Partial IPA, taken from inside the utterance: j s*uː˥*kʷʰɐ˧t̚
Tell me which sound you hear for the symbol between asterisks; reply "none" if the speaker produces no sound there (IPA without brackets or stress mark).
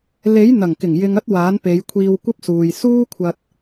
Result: uː˥